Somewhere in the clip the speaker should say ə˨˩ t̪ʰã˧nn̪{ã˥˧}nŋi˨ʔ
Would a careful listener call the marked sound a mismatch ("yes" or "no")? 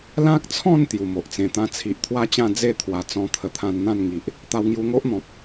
no